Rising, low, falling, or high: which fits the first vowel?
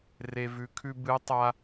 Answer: low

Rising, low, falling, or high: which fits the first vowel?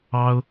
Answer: high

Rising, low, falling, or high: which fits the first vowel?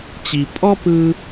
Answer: low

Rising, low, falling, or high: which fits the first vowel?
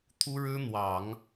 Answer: high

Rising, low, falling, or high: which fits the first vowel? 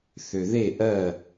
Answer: low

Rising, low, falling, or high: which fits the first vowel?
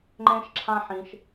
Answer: high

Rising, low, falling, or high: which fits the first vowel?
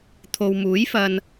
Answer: low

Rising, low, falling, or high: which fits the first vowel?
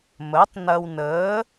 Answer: rising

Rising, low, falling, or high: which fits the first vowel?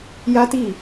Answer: high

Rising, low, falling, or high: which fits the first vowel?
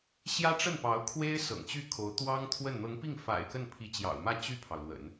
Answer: high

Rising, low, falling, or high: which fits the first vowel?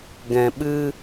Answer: low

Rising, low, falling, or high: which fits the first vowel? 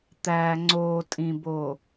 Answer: low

